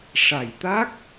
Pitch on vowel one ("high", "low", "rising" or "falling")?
low